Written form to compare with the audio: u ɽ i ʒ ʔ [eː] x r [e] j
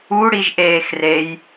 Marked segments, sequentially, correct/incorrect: correct, correct

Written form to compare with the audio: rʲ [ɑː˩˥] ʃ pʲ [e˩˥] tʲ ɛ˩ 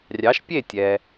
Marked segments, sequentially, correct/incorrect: incorrect: ɑ˩˥, incorrect: e˥˩

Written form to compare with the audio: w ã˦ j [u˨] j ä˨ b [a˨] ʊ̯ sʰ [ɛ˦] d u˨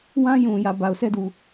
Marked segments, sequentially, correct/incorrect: incorrect: ũ˨, correct, correct

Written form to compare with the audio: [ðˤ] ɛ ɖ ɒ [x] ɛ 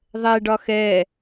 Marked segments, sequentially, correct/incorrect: correct, correct

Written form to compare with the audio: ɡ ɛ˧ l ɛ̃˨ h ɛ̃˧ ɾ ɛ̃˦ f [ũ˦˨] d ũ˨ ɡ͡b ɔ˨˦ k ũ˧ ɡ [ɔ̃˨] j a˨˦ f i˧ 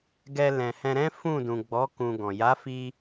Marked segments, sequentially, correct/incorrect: correct, correct

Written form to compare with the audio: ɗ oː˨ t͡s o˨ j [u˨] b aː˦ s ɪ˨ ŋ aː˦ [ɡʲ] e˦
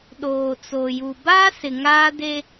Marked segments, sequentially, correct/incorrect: correct, incorrect: d

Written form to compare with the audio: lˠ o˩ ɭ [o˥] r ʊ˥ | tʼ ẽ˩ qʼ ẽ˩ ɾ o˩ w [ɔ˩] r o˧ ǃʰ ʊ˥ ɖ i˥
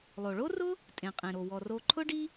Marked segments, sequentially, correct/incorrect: correct, correct

